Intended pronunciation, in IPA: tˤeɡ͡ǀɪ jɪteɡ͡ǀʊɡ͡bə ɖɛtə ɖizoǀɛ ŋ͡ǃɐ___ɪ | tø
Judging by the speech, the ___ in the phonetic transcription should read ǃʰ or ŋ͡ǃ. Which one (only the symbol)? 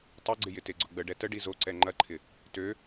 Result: ǃʰ